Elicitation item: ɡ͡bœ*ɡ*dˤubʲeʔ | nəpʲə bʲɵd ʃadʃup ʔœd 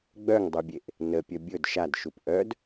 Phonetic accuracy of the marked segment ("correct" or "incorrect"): incorrect